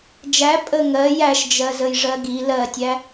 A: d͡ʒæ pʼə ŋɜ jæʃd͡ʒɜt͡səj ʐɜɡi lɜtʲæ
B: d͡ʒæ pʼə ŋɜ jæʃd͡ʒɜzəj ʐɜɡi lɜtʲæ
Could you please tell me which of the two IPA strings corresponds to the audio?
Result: B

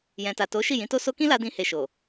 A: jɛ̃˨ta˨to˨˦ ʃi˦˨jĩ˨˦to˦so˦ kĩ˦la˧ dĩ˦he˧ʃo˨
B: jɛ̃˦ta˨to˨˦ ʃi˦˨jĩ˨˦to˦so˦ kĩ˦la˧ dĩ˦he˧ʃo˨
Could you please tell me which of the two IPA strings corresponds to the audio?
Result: A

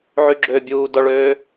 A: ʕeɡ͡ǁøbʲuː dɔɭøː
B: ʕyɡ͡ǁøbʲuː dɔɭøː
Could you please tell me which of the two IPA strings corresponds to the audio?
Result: B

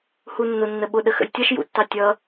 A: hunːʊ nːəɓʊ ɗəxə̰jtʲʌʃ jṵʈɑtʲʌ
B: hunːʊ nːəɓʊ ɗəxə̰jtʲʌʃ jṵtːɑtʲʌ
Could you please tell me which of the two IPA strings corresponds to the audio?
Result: B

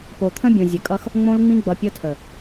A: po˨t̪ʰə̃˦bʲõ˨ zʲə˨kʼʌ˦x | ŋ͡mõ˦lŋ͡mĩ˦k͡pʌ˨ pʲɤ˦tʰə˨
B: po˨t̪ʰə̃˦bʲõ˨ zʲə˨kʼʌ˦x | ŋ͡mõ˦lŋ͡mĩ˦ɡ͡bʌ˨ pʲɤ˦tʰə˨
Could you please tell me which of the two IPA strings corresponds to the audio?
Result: B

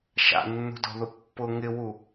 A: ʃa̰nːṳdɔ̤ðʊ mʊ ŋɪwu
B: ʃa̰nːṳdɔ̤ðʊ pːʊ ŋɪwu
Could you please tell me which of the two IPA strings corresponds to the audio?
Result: B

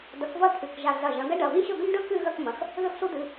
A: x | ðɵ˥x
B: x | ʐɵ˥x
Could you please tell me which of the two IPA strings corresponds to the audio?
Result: A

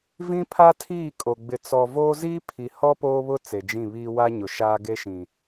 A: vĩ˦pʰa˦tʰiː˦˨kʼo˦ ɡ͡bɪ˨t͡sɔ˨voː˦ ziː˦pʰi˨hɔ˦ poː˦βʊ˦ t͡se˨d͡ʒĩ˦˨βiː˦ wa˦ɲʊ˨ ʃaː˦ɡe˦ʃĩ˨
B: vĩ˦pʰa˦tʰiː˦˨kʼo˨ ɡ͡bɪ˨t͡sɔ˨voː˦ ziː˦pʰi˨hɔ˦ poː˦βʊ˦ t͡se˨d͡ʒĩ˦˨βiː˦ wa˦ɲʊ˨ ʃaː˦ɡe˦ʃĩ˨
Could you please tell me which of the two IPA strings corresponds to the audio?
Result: B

